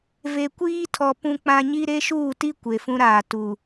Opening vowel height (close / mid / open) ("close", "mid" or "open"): mid